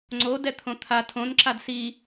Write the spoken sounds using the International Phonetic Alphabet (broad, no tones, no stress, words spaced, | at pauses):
ŋ͡ǀodɛ t̪ʰõt̪ʰa tʰõnǁad si